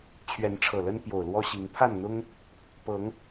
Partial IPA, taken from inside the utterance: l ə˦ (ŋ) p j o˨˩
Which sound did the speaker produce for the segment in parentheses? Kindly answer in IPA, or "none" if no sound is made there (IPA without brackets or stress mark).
n